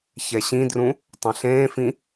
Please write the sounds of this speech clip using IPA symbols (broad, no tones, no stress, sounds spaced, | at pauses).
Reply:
ç ɛ ɕ ĩ d r ũ | tˤ ẽ ɬ ẽː f ĩ